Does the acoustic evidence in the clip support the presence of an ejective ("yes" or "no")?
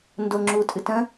yes